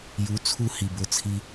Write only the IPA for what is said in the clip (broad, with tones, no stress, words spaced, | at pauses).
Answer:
ju˨˦t͡sʰu˧hi˨ bʊ˦˨t͡sʰi˦